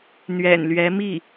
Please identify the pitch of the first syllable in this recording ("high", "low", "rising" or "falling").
low